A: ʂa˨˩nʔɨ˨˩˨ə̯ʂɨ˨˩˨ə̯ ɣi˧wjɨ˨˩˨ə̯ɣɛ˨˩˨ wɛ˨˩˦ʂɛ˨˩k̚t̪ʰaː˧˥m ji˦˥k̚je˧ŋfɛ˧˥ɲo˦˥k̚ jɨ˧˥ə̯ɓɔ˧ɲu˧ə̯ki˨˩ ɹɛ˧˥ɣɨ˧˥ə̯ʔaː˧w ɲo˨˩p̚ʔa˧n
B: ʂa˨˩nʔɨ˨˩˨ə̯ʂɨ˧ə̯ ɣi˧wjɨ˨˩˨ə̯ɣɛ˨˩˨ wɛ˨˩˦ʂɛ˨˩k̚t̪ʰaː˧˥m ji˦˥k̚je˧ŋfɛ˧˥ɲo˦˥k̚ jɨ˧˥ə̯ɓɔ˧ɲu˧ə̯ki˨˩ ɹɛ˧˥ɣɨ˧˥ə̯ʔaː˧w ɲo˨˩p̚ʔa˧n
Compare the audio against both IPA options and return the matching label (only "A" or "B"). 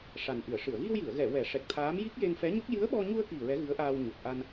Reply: A